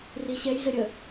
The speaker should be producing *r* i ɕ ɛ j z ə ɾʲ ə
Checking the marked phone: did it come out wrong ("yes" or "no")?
no